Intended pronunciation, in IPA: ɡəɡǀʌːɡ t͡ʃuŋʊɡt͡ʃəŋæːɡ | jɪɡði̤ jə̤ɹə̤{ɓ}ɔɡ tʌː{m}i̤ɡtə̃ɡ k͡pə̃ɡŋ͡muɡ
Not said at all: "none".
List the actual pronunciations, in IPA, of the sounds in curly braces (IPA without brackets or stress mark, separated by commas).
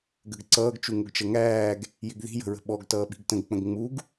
ɓ, ɓ